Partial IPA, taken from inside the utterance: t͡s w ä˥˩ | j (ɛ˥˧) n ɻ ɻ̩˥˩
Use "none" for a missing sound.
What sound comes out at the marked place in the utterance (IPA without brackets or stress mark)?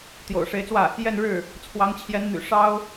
ɛ˥˧